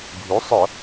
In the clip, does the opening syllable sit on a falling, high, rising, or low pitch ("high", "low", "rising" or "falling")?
rising